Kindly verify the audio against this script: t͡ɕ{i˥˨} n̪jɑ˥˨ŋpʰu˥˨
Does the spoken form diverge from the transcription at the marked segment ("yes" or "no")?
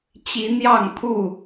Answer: yes